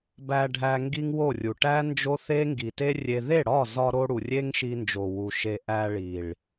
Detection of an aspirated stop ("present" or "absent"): absent